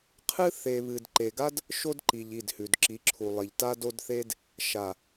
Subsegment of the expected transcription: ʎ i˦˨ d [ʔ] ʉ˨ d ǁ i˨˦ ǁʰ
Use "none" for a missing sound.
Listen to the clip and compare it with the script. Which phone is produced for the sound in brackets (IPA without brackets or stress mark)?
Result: h